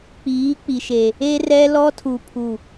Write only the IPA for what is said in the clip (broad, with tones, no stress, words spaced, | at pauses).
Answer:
k͡piː˨˦ k͡pi˨ʃe˨ | e˦rɛ˦ lɔ˦tʰu˨pʰu˨